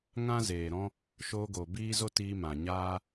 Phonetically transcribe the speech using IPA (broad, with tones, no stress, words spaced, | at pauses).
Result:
ŋã˦zeː˨ɾɔ̃˦ | ʃoː˧ɡo˨ biː˦zo˦ tiː˧ mã˨ɲaː˦